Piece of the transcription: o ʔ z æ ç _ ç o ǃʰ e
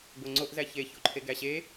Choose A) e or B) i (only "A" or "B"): A